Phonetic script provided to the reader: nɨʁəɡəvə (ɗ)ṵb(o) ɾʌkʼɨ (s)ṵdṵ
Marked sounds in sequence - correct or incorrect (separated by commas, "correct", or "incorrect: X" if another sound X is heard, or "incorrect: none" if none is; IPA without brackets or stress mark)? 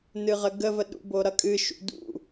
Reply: correct, correct, incorrect: ʃ